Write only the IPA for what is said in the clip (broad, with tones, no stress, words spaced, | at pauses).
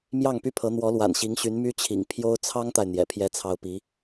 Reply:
mjɑ˥˩ŋpy˥pʰɤ˧˥ n̪wɔ˧˥lwa̰˨˩nɕi˧˥ŋɕy˧˥n my˥t͡ɕʰḭ˨˩ŋ pʰjo˥ʊ̯ t͡sʰɑ˥ŋt̪a˨ɪ̯ n̪jɛ̰˨˩pʰjɛ˥t͡sʰɑ˥ʊ̯ pi˧˥